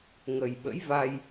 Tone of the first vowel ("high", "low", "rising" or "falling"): low